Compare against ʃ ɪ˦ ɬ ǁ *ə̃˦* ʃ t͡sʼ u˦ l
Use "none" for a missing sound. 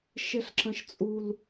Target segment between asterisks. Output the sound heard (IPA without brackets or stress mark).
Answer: ə̃˦